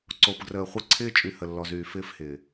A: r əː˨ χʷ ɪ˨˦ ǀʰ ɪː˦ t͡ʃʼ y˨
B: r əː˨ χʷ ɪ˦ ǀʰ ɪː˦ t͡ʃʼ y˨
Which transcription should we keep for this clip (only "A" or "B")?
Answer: B